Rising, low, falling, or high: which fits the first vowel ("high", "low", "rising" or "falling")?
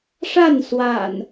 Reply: falling